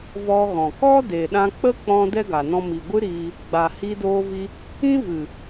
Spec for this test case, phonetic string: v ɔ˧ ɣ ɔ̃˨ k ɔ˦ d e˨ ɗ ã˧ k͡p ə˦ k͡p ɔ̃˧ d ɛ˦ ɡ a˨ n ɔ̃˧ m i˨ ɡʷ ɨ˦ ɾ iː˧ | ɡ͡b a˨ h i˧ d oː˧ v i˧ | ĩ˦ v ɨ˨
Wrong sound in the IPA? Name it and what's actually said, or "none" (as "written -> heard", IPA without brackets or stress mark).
none